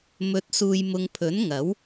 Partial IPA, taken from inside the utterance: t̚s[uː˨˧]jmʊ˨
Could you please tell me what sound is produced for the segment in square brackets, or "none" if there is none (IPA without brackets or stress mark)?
uː˨